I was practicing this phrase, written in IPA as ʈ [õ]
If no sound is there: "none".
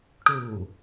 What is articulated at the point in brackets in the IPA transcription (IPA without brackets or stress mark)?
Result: o